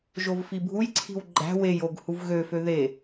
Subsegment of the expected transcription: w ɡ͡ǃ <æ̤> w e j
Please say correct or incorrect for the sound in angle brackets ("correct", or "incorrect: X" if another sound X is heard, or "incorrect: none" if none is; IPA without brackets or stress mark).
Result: correct